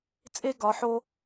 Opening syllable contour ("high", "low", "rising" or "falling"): high